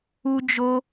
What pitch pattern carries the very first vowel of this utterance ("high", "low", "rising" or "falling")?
high